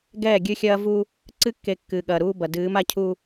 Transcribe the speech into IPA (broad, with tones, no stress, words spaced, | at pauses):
ɡɛː˦˨ɡʲɨ˦xʲɐː˦vu˦ | ǀɨ˦kːe˨ kːɨː˨ɠɐː˨ɾuː˦bɐ˨ dɨː˨˦m a˦cʰu˦